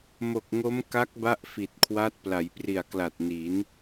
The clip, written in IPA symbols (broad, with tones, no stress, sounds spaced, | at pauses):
m o˨˩ k̚ ŋ o˦˥ m k a˦˥ k̚ b a˥˩ ʔ f i˨˩ t̚ kʰ w a˦˥ t̚ p l a˩˦ j p r i˨˩ a̯ k l a˨˩ t̚ n i˩˦ n